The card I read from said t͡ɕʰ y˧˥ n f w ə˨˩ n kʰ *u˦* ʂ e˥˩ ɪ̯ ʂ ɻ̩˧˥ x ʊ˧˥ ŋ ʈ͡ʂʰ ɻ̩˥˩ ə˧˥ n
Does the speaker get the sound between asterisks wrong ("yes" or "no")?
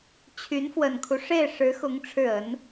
no